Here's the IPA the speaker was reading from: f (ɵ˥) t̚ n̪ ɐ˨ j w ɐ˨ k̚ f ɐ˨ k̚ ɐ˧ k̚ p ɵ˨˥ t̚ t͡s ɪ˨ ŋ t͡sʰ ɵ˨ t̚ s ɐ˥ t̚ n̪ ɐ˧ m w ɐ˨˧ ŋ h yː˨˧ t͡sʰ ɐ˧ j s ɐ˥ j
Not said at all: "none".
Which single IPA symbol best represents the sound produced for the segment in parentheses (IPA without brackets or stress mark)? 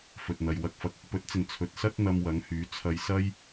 ɵ˨